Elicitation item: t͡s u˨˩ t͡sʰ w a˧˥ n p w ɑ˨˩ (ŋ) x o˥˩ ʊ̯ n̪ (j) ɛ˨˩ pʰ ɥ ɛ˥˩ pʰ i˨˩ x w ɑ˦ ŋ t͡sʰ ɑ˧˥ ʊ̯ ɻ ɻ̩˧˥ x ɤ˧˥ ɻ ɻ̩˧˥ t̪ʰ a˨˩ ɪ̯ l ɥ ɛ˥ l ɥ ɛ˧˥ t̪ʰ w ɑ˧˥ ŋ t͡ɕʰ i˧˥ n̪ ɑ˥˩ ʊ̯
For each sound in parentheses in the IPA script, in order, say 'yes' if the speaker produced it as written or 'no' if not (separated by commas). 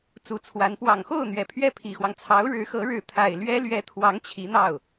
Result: yes, no